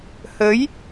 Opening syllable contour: rising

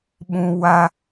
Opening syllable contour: high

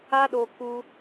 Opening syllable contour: high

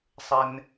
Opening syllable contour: low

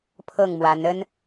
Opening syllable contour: falling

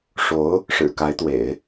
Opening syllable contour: rising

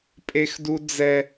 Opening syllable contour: high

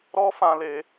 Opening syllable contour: high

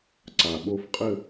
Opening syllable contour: low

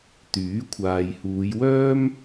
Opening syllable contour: rising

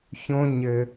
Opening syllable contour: high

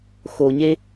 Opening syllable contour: low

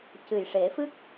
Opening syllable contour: low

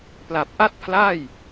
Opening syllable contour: low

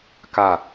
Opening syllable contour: falling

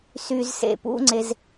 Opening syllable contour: low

